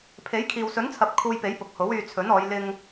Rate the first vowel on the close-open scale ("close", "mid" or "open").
mid